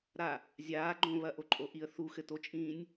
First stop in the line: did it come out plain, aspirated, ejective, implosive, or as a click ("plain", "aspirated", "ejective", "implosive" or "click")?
click